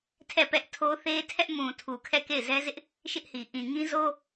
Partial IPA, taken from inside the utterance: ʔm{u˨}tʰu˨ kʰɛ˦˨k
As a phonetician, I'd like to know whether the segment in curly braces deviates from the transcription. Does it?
yes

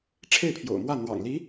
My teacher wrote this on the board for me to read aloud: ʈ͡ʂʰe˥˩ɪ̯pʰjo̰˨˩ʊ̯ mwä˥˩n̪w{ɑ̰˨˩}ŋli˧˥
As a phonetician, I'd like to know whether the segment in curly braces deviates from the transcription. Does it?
no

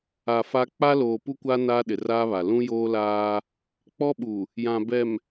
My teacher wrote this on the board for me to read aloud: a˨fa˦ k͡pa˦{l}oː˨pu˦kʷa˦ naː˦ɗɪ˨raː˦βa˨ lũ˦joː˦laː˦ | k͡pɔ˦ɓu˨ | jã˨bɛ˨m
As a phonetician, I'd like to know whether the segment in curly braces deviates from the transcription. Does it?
no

